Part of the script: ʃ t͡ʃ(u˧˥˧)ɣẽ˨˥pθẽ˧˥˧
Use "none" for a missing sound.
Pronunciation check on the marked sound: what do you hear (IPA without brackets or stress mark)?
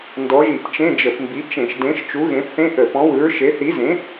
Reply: u˨˥